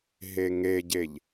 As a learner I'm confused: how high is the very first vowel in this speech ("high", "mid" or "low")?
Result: mid